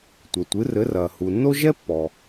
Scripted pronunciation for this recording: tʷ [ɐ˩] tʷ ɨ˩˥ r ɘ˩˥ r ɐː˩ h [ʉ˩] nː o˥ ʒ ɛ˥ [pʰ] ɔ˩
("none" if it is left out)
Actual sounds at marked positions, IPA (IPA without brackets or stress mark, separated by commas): ɐ˩, u˩, pː